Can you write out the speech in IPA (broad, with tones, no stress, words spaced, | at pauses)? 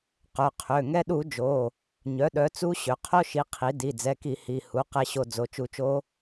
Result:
qœ˩˧˩qʰø˩˧˩ ŋɛ˧ɗu˧˩˧ d͡ʒo˩˧˩ | ɲœ˩˥ɗœ˩˥ t͡su˦˥ɕø˩˥ qʰo˦˥ʃi˩˥ qʰi˩˥ di˩˧˩d͡zɛ˩˧˩ki˧˩˧ hi˩˧˩ hu˩˥qɛ˧ ɕo˧ d͡zo˩˧˩t͡ʃu˧t͡ʃo˦˥